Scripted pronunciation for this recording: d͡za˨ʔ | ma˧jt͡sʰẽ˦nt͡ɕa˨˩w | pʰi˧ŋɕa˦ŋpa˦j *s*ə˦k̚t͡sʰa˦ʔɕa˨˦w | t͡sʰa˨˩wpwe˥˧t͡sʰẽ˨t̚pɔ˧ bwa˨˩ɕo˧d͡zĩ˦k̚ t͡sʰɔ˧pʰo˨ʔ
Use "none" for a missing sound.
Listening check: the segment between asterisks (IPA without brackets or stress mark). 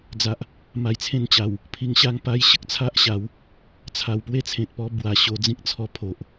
ɕ